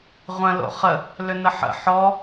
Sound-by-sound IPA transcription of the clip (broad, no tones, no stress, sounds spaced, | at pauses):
ʁʷ ə̃ l o̰ χ ə | l ʏ n ə ħ ə̰ ħ ɔ